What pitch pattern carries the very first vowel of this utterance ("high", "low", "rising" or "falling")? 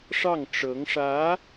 falling